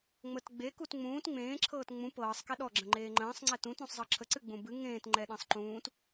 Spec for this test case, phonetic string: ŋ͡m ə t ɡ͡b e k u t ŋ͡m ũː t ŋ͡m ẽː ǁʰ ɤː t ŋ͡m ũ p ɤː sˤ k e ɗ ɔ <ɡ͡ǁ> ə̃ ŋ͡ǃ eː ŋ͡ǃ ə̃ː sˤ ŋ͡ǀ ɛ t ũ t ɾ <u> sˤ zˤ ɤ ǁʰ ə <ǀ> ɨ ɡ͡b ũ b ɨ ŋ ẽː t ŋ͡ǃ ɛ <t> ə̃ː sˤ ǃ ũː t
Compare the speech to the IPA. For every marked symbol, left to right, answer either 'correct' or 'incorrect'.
correct, incorrect, correct, incorrect

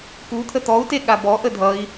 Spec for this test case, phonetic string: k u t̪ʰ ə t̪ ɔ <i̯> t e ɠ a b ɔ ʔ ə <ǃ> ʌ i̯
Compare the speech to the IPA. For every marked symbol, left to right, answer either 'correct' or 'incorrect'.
incorrect, incorrect

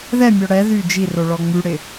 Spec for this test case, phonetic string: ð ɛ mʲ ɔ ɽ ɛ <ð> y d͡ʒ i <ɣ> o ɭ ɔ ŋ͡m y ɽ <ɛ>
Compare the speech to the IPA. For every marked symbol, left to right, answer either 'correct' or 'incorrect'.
correct, incorrect, incorrect

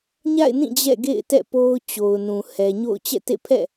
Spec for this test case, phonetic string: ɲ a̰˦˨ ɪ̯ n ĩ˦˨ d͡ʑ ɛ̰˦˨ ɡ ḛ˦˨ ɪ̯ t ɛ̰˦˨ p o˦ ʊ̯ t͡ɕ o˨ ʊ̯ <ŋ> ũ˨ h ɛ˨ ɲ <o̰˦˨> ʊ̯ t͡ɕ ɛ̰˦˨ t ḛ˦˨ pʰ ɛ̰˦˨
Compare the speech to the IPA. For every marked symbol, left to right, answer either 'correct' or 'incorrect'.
incorrect, correct

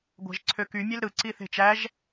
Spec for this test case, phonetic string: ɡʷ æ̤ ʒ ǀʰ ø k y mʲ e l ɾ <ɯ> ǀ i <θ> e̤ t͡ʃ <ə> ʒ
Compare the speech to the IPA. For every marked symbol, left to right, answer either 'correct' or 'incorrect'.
correct, correct, incorrect

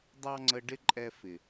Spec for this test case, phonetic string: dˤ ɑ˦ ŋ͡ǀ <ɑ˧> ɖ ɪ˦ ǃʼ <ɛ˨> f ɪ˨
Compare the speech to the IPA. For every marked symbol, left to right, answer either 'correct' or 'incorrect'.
incorrect, incorrect

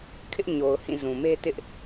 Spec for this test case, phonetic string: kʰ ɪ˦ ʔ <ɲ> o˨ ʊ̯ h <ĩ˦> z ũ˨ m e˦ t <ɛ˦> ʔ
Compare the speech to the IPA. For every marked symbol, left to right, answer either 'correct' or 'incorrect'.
correct, incorrect, incorrect

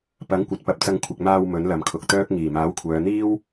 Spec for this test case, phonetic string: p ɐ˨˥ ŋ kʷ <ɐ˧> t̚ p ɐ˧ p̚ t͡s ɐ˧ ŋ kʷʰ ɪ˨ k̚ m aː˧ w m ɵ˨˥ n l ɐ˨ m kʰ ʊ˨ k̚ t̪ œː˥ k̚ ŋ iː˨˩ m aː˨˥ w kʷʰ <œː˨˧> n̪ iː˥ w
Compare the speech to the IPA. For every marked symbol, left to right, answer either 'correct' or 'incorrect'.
incorrect, correct

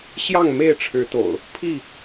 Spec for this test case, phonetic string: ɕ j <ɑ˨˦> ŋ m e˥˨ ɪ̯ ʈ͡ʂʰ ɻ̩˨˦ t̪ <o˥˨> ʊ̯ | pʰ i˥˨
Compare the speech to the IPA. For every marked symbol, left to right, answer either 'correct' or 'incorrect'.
incorrect, incorrect

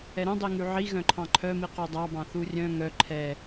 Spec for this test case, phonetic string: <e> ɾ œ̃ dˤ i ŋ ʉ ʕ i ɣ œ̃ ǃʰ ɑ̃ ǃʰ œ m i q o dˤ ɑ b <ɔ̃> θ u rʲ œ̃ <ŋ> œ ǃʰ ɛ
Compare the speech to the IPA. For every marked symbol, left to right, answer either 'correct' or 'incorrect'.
incorrect, incorrect, correct

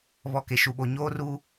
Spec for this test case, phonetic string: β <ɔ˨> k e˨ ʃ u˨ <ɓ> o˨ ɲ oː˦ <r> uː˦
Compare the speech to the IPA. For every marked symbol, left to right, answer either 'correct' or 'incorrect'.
correct, correct, correct

